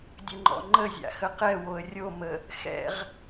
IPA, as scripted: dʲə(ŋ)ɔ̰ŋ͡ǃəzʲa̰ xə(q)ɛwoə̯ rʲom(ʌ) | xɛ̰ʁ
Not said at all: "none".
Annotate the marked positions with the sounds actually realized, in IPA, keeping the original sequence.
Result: ŋ͡ǃ, q, ə

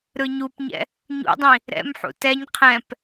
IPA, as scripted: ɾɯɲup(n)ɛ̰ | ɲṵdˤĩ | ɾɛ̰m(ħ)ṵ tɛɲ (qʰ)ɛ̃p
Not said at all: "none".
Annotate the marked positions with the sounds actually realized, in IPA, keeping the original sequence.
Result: ɲ, ħ, qʰ

